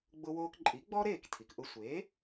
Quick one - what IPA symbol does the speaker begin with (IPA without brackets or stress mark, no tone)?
ɡ͡b